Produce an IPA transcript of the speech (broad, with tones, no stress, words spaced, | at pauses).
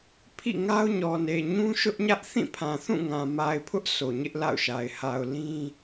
pʰḭ˦˨ŋa˦ʊ̯ɲɔ˨ne˨ ɲũ˦ʃʊ˦ʔɲä˦ʔ θĩ˦˨pʰã˨θũ˦˨ŋã˨ ma˨ɪ̯pʰʊ˦ʔ sʰo˨ɲɪ˦ʔla̰˦˨ʊ̯ʃa˨ɪ̯ ha˨ʊ̯ lĩ˦